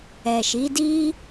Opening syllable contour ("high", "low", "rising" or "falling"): low